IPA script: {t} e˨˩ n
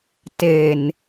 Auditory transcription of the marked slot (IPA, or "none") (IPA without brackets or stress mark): t